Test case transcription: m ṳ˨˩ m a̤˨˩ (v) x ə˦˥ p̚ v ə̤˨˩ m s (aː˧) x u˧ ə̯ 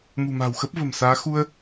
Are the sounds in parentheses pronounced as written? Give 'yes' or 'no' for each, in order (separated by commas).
no, no